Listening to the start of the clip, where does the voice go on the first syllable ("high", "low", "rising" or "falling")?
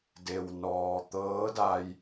low